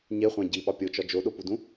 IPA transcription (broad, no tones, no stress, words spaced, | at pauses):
ɲeχʷæ̃ ɟiɓɒ pʲot͡ʃɒ d͡ʒoɗopudũ